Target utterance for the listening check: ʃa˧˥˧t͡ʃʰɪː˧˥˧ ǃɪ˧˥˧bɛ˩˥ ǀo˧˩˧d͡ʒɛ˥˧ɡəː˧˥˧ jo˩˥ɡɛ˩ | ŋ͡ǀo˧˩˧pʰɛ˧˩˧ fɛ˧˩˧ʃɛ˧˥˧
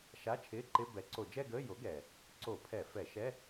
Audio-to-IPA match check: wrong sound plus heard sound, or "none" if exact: ŋ͡ǀ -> ǀ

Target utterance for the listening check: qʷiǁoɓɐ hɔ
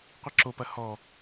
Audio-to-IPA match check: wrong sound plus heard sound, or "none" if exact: ɓ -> p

